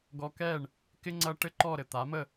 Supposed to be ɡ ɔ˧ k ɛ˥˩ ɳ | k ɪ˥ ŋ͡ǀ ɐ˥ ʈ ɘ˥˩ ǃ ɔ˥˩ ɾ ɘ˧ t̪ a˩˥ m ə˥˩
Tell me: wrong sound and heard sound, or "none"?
none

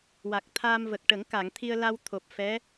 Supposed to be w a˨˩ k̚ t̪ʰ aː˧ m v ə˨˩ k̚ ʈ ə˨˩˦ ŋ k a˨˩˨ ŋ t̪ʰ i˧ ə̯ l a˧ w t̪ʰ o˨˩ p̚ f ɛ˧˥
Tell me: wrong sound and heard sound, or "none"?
none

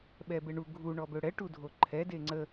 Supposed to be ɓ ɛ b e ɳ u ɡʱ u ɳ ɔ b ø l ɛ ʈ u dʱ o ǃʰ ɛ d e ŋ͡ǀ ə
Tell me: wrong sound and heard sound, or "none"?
l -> ɽ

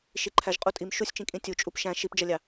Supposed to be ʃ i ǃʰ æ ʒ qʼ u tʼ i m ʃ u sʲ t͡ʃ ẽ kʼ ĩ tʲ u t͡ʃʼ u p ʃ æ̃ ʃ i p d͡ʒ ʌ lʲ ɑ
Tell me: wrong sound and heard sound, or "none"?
ẽ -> ĩ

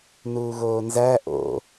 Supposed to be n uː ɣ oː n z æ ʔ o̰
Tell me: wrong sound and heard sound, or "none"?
none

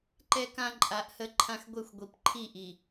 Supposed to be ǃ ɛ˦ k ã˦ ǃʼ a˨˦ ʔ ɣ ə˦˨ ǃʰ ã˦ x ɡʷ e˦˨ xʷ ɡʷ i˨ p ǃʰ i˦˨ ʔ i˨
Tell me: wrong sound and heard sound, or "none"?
ɣ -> h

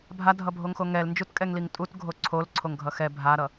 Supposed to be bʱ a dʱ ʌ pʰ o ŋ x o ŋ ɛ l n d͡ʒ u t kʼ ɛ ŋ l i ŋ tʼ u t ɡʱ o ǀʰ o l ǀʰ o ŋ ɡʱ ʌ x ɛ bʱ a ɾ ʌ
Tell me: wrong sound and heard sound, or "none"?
pʰ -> bʱ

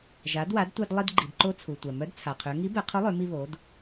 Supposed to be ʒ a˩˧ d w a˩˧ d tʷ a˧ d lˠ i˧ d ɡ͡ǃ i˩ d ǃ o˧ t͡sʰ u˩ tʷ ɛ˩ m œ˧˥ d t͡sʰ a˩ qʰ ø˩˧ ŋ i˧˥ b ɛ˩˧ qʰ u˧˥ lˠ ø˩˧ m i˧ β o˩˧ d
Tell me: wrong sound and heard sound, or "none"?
none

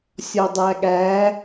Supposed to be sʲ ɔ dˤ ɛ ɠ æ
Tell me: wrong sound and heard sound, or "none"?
ɛ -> æ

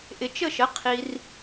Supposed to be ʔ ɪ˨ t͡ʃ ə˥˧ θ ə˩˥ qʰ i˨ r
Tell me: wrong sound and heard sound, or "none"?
θ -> ʃ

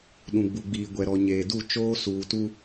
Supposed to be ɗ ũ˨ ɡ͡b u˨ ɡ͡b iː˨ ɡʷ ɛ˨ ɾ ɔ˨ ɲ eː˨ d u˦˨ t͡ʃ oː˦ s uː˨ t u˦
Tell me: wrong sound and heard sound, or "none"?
none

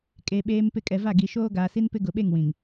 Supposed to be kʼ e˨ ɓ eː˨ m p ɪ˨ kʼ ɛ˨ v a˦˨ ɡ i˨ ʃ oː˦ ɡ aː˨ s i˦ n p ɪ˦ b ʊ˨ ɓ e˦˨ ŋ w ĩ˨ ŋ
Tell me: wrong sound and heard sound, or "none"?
b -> ɡ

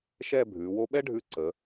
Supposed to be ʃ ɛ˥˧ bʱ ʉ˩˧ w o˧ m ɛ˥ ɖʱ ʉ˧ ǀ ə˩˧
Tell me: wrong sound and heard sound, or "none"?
m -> ɓ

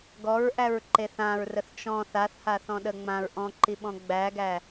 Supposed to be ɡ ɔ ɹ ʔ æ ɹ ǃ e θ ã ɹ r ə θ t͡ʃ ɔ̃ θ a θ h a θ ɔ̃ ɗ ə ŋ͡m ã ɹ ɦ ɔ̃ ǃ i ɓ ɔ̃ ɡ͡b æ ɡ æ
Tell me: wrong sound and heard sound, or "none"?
ɦ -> ʔ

